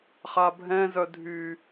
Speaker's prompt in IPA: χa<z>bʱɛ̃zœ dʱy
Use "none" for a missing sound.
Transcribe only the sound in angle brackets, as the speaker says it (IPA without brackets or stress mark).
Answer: none